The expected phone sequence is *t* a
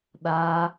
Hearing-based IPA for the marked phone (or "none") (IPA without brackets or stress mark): ɗ